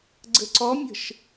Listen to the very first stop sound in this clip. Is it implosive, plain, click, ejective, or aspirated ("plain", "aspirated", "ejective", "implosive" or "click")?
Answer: click